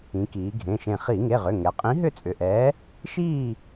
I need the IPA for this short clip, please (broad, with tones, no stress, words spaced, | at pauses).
ĩ˩˧ kiː˩˧ɡʱẽ˩˧˩ʃẽ˧˩ χi˧˩˧ŋe˩˧˩ʁʏ˩˧˩ ŋɛ˩˧qʼĩ˨˥ɦʏ˥˨ t͡sʼʏ˩˧˩ʔɛː˨˥ | ʃiː˥˨